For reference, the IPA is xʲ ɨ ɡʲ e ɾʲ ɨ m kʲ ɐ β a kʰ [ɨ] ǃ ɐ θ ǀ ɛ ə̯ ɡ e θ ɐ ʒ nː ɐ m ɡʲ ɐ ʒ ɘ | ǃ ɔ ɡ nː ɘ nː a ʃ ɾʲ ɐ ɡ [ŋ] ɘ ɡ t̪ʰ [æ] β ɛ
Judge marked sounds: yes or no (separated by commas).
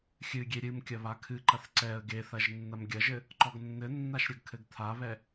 yes, no, no